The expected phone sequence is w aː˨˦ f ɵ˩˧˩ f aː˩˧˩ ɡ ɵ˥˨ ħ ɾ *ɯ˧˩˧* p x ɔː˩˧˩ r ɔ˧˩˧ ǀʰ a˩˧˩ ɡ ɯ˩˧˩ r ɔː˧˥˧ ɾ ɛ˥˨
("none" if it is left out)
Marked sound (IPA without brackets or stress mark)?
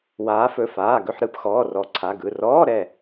ɯ˧˩˧